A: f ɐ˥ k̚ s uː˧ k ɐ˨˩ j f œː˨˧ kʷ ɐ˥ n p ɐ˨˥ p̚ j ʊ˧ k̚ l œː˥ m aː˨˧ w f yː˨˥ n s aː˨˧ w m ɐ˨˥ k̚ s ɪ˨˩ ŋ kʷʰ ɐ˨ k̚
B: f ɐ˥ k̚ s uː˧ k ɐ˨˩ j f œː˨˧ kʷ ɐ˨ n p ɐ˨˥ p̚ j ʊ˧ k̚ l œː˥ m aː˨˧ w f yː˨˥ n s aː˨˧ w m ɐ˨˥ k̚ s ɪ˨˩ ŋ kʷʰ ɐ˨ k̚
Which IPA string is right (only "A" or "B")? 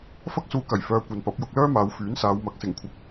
B